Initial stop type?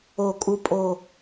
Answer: ejective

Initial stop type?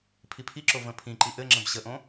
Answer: aspirated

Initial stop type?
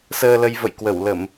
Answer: plain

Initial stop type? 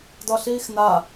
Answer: plain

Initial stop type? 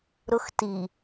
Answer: plain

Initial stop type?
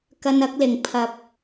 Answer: plain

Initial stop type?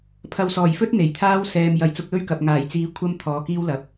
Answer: aspirated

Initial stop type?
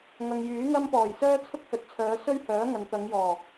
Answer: plain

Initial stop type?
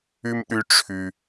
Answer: implosive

